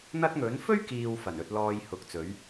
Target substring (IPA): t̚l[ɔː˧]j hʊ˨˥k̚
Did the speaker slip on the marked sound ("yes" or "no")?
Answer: no